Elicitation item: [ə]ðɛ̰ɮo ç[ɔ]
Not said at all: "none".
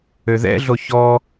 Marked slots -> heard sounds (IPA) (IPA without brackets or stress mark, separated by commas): ø, ɔ